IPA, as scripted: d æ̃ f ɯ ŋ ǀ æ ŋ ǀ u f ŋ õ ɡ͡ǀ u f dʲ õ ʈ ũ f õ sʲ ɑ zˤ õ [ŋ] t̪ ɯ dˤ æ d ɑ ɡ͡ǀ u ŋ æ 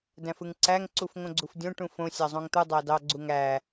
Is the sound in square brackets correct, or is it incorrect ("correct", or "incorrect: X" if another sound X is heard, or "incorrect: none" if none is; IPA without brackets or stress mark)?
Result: correct